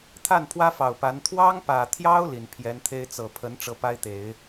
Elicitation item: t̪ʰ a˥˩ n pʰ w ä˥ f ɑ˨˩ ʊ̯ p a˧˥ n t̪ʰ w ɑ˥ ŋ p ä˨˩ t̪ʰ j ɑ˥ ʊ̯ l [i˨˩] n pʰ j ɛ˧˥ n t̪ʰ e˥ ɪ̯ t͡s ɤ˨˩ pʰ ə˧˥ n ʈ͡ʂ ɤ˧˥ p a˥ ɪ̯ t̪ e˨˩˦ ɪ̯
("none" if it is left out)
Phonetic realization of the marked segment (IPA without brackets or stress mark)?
i˨˩